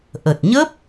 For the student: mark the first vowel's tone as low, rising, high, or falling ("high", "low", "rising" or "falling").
low